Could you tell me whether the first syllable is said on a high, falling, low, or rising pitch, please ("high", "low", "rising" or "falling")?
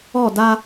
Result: falling